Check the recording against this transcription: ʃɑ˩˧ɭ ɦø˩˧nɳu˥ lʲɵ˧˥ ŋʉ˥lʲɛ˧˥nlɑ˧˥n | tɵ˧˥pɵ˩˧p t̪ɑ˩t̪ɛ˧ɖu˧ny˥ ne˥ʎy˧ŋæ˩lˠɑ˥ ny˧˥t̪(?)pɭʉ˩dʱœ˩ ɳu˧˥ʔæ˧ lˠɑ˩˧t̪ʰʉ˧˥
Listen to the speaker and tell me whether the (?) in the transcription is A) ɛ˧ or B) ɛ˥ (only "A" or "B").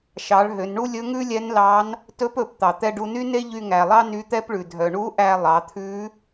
B